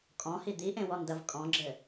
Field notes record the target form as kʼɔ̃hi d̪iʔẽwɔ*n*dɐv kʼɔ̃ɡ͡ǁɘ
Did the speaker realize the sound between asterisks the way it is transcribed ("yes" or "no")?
yes